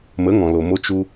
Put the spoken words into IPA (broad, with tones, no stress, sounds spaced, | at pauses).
m ə˨˦ ŋ ɔ̃˨ l o˨ m o˧ t͡ʃ u˧